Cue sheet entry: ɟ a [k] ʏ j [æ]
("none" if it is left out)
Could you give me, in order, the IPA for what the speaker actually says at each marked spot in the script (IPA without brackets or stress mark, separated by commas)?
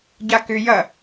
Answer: k, ɐ